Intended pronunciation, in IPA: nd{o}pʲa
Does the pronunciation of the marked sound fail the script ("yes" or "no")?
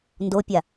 no